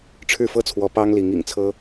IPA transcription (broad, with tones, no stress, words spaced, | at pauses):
ʈ͡ʂʰɻ̩˥˩fɤ˥t͡sʰwɔ˧˥ pɑ˥ŋli˧˥ŋḭ˨˩ŋt͡sʰɤ˥